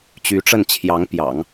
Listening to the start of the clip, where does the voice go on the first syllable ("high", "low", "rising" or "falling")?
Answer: rising